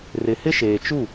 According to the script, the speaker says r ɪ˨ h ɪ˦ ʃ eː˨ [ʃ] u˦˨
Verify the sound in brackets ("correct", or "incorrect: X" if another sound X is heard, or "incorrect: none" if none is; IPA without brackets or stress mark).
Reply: incorrect: t͡ʃ